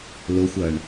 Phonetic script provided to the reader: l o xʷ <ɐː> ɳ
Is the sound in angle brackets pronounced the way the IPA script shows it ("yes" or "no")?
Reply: yes